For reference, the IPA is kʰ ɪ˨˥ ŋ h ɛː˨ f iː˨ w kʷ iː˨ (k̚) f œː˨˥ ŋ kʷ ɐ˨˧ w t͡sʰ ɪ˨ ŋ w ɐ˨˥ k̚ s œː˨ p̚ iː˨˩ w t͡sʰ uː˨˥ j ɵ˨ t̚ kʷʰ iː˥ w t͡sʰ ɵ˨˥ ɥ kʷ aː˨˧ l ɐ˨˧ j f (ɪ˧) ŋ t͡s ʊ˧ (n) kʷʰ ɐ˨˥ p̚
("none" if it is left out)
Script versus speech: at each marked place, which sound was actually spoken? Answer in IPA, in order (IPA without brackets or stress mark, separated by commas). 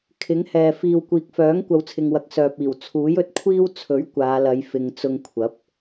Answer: k̚, ɪ˨, ŋ